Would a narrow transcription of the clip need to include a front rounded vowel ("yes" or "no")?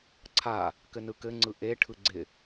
no